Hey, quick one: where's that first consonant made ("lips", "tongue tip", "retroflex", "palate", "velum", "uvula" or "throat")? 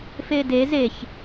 lips